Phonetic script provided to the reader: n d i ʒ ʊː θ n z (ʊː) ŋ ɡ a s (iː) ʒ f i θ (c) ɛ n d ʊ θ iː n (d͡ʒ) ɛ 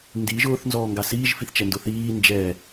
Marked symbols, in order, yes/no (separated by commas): no, yes, no, yes